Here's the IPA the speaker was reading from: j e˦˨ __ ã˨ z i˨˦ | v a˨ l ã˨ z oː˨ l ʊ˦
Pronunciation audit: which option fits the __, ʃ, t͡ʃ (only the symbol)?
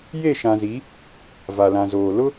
ʃ